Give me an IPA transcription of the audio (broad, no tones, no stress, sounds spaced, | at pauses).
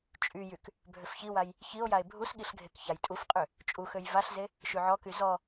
t͡ʃʼ y j y k | bʱ ø f ç i w a j | ç i o̯ j a e̯ bʱ u s ɠ i ɬ ɡʱ e k ç a j tʼ u f qʼ ø | t͡ʃʼ u x ø j v a ɬ z e | ʃ y ʕ ɔ k y z ɔ